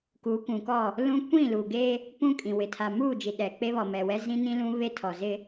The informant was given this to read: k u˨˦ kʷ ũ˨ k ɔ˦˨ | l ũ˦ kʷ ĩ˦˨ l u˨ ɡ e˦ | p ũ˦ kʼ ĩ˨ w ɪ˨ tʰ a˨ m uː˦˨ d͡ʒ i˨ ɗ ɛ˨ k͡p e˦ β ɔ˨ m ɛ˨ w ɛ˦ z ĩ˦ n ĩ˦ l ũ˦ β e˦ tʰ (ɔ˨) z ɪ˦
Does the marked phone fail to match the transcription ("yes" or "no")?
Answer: no